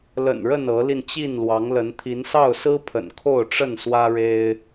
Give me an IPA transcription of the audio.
l ə̰˨˩ n ɻ ə˥˨ n ɤ˨˦ l i˧ n t͡ɕ i˥˨ n l w ɑ˨˦ ŋ l ə˨˦ n t̪ʰ i˨˦ n s ɑ˥˨ ʊ̯ s ɹ̩˦ pʰ ə̰˨˩ n kʰ o˥˨ ʊ̯ ʈ͡ʂ ə˥˨ n s w ä˦ ɻ e˦ ɪ̯

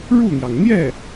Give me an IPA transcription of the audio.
ɻ u˥˩ n̪ j ɑ˩ ŋ n̪ j ɛ˥˩

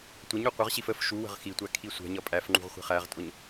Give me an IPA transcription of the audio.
tʷ ə ɲ u qʷ ʌ ʁ ɕ i f ə f ʃ u w ə̤ ʁ x i tʷ æ kʰ i sʷ ɛ̤ ɲ ʌ pʼ æ f ŋ͡ǃ ṳ ʁ χʷ ɛ̤ χ æ ʁ tʼ ʊ ɲ

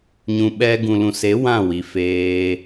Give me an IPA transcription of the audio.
ɲ ũ˨ ɓ ɛ˧ ɡ ũ˨ l ũ˨ s e˨˦ w ã˦˨ w i˨ f eː˧

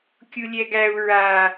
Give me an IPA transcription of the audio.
kʲ u lʲ ɛ ɡ æ u̯ ɹ a

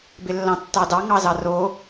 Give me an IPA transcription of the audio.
b ɪ lː ɑ̃ tː ɑ d ɑ ŋ ɑ z ɑ r o

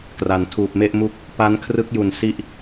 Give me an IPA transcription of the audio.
k r a˩˦ n tʰ uː˨˩ p̚ m e˥˩ ʔ m u˥˩ k̚ | p a˦˥ n kʰ r ɯ˦˥ k̚ j u˨˩ n s i˦˥ ʔ

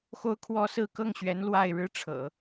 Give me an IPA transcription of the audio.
x o˥ ʊ̯ kʰ w ɔ˥ s ɹ̩˥ k ɤ˥˩ ŋ ɕ ɥ ɛ˧˥ n l w a˥˧ ɪ̯ ɻ ɻ̩˥˩ ʈ͡ʂʰ ɤ̰˨˩˦

